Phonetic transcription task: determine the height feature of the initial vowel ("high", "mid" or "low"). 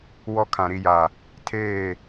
mid